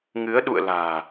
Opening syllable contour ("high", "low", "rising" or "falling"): rising